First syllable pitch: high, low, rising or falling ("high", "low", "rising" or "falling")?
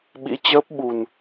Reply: rising